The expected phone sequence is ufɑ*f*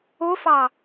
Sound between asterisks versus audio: incorrect: none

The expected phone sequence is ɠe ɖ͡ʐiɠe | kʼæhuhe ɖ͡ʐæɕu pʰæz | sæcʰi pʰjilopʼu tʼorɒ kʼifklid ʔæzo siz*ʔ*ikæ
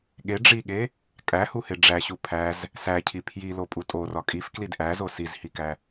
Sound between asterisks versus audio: incorrect: h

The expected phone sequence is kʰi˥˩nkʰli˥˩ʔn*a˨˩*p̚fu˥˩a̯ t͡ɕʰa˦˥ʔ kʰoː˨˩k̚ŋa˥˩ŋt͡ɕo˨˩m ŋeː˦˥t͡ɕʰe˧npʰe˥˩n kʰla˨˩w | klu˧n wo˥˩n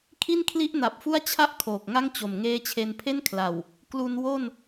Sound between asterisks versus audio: correct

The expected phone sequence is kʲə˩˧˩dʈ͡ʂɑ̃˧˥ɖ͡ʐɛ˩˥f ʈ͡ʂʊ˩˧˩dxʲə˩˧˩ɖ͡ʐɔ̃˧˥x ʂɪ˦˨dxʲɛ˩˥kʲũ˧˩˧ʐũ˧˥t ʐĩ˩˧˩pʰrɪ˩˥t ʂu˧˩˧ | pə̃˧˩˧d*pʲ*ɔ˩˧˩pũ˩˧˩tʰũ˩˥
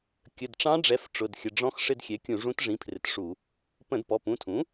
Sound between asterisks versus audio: incorrect: p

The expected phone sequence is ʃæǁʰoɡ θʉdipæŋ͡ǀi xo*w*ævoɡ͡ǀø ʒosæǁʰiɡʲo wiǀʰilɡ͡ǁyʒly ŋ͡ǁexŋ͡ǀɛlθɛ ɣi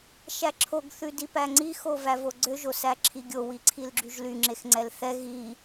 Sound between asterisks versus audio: incorrect: v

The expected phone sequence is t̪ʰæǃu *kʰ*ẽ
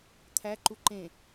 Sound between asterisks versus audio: incorrect: ǃ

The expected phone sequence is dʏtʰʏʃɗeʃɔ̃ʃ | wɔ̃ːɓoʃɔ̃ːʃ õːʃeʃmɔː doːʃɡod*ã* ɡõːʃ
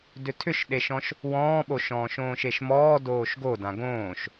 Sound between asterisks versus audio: correct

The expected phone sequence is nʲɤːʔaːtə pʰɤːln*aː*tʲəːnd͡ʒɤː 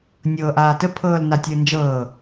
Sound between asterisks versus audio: incorrect: a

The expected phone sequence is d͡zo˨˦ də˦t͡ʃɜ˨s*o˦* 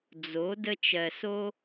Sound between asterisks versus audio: correct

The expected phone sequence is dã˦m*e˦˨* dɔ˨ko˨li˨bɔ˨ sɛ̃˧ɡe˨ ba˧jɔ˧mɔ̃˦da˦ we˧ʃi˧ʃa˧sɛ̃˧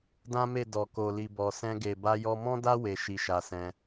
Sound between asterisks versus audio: correct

